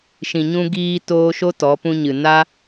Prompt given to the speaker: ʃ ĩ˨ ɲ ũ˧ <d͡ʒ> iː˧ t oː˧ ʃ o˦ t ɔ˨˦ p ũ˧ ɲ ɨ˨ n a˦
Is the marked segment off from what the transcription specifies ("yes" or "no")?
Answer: yes